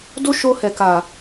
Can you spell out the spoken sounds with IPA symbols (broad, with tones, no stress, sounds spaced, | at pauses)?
d o˦ ʃ o˧ h ɛ˨ k a˨